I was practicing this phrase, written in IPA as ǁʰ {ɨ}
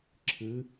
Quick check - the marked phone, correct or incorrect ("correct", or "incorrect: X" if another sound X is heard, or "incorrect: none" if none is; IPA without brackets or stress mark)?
correct